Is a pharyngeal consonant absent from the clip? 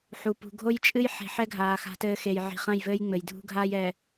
no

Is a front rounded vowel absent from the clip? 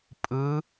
yes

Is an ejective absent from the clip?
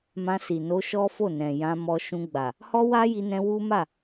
yes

